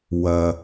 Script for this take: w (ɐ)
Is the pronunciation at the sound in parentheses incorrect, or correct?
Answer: correct